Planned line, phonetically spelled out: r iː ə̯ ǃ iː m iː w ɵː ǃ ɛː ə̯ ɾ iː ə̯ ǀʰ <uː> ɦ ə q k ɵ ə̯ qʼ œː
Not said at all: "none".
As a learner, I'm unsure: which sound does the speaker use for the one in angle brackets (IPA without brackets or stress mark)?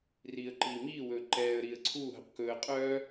uː